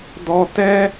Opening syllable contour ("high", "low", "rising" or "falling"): high